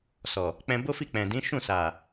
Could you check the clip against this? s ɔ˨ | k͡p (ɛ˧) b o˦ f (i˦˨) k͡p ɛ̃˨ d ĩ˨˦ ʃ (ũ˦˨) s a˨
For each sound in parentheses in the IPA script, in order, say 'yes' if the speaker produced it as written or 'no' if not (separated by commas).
no, yes, yes